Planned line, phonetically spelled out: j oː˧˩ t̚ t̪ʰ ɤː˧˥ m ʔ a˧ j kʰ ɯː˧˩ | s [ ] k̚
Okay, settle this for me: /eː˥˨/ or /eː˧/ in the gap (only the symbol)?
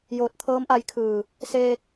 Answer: eː˧